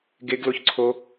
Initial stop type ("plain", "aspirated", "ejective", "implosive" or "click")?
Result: plain